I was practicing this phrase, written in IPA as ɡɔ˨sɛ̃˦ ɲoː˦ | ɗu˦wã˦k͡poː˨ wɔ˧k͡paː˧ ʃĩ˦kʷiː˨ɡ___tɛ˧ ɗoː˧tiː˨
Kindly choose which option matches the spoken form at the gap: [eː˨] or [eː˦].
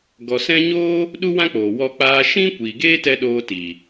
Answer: eː˦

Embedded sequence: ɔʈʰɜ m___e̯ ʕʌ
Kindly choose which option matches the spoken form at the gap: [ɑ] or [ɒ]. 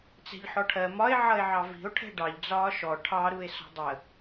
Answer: ɒ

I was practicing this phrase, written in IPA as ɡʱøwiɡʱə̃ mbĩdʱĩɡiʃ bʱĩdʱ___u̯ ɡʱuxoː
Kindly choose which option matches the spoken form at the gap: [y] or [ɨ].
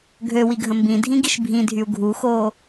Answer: y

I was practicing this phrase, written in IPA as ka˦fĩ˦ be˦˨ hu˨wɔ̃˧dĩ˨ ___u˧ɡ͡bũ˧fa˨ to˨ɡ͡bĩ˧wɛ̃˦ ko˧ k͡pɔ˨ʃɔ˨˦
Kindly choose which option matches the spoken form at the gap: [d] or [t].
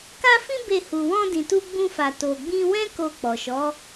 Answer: t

